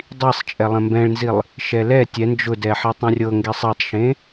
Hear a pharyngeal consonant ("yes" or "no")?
yes